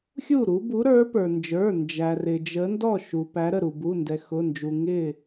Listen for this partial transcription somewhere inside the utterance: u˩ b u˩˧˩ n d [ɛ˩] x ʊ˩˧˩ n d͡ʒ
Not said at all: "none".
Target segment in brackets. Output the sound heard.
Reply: ɛ˩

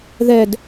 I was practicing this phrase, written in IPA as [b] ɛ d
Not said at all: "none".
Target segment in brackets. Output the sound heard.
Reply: ð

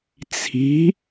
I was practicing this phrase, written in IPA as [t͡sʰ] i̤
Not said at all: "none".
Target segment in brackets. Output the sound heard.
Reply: t͡sʰ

